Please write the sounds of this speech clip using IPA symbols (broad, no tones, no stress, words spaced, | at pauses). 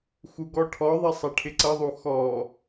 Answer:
xuɡɔʈʰɔðˤɪ sˤɛʈʰɪǀʌðˤu xɔ